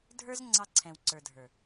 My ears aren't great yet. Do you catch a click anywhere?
yes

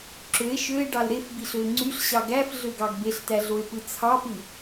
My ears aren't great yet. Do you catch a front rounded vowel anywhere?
yes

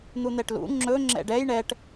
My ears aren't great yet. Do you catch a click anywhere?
yes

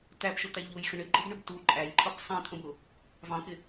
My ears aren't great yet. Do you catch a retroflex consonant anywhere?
yes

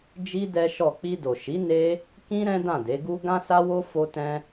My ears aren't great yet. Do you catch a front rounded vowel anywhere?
no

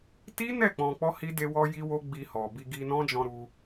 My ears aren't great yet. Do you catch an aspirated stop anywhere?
no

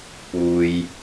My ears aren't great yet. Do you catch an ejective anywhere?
no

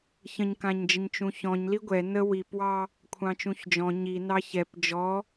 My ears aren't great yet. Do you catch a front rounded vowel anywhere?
no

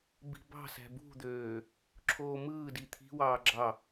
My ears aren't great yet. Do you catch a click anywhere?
yes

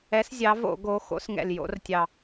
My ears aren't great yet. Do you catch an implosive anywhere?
no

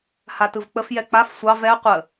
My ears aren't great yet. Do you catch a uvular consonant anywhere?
yes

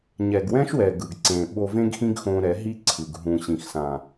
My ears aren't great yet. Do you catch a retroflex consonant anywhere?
no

